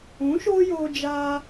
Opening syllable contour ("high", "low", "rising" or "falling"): rising